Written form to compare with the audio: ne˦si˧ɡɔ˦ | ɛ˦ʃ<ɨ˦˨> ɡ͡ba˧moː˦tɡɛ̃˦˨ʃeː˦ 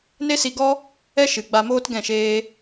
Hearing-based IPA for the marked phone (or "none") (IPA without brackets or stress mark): ɨ˨